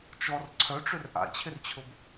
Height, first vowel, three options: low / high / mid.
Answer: mid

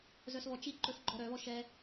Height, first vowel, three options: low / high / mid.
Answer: mid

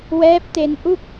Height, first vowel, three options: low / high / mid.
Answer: mid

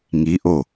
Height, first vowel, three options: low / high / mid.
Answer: high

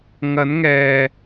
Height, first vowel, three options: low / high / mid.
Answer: low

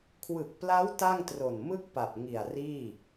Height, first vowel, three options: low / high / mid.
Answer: high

